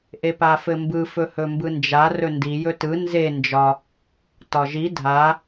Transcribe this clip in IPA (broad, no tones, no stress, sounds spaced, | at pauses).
ʔ e p a f ɘ m b ɯ f ɵ h ɵ m b ɯ n d͡ʒ a r ɵ n d i j ɵ t ɯ n z e n d͡ʒ ɒ | t ɒ ʒ i dʱ a